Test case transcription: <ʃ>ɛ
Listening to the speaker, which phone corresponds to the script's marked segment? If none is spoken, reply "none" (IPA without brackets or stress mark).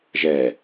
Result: ʒ